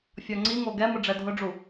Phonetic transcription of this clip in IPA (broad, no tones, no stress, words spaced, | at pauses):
fʲɔŋ͡ǀiŋo ɡɛmʊ ɖ͡ʐɛdʱʊɖ͡ʐu